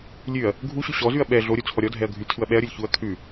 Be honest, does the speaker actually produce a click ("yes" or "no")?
no